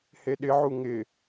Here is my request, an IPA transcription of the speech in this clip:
h e ɗ ɪ ʕ u ŋ ɪ

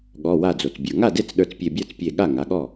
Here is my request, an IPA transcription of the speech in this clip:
ɠ ɔ˩˧˩ w a˧˩ d͡z o˩ t͡s bʲ ə˞˩ ŋ a˥˩ d e˥˩ t͡s ɗ ə˞˧˩ t͡s pʲ e˧˩ bʲ ə˞˥˩ t͡s pʲ e˧˩ ɠ a˥˩ ŋ a˩˧˩ ɠ ɔ˥˩

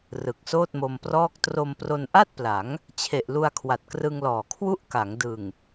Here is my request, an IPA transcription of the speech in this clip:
r ɯ˨˩ k̚ s oː˥˩ t̚ m o˧ m p r ɔː˥˩ k̚ t r o˧ m p r o˧ n ʔ a˥˩ t̚ p l a˩˦ ŋ | t͡ɕʰ e˨˩ ʔ l u˧ a̯ kʰ w a˨˩ t̚ k r ɯ˧ ŋ l ɔː˨˩ kʰ w u˥˩ ʔ k a˩˦ ŋ d ɯ˨˩ ŋ

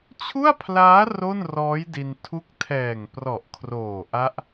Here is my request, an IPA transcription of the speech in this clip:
t͡ɕʰ u˥˩ a̯ pʰ l aː˦˥ r o˥˩ n r ɔː˦˥ j d i˧ n tʰ u˦˥ k̚ tʰ ɛː˨˩ ŋ p r ɔ˨˩ ʔ kʰ r oː˨˩ ʔ a˦˥ ʔ

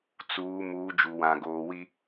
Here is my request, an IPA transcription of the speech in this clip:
t͡s uː˨˦ m uː˨˦ d͡ʒ u˨ w ã˨ ɡ oː˨ w i˦

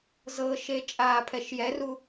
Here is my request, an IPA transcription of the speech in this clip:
z ɤ ʃ e t͡ʃʼ aː pʰ ɛ ʃ j ɛ r u

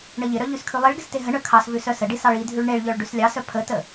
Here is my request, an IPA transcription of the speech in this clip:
ɳ ə ʎ ɪ ɾ œ ʎ ʉ s kʰ ʉ lˠ i ɭ ɡ ɪ s t e ɦ ə ɳ œ kʰ ɑ s v ʉ s œ s ə ɖ i s ɑ ɭ i dʱ ʉ ɭ ɳ e ɭ ʎ œ ɭ ɖ ʉ s lʲ ɑ s œ pʰ ə t ə

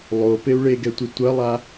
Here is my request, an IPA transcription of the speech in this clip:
lˠ o p e u̯ ɭ e ɡ ɛ tʷ e tʷ ɐ lˠ a

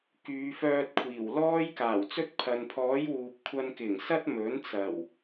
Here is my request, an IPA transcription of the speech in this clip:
k yː˨˧ f œː˧ t̚ kʷʰ iː˨˩ w l ɔː˥ j k aː˨˩ w t͡s ɵ˥ t̚ pʰ ɐ˨ n pʰ ɔː˨˥ j w uː˨ p̚ kʷʰ ɐ˧ n k ɪ˨˩ ŋ s ɐ˥ t̚ m ɵ˨˥ n t͡s ɐ˨˩ w

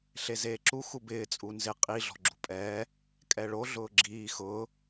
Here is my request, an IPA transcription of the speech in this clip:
ɬ e z eː ǁ u x u b ɪː t͡sʼ u n z ɪ qʼ i ɮ ɔ̤ ɡ͡ǁ ṳ pʼ ɛː | kʼ ɛ ɭ o ɮ ʊː ɡ͡ǁ iː x ʊː

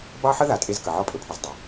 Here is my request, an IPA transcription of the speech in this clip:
b ɑ˦ ħ ə˦ ð a˨ tʼ e˦ z k ə˨ ʕ ɔ˦ pʼ ɵ˨ pʰ i˨ z dˤ ə˨

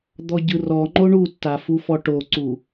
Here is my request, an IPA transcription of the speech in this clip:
d̪ ɔ ɟ ɯ r ɔ ŋ͡ǃ o ɳ u tː a f u f ɔ ʈ o ǀ u

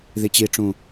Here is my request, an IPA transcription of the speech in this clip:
ð i t͡ɕ i ʈ͡ʂ ũ

